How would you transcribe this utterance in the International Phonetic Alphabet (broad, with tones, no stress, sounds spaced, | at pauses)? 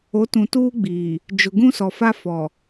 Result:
o˨˦ t ũ˨ t uː˦ ɡ͡b iː˨ | d͡ʒ ʊ˨ ɡ ũ˦ s ɔ˨ f a˦ f ɔ˨